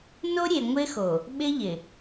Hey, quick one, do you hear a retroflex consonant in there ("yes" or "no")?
no